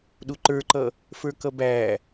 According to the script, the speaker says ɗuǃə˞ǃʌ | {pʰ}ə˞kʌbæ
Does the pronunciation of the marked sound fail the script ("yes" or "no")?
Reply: yes